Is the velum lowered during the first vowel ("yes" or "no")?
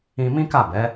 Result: yes